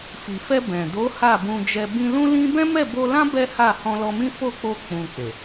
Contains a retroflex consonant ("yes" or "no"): no